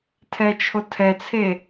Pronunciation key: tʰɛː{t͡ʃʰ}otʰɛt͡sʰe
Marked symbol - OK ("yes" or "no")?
yes